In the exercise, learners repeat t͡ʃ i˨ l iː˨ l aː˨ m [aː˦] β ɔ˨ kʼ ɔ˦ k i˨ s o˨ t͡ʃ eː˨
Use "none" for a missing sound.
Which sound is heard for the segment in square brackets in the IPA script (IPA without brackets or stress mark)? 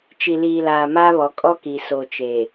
aː˦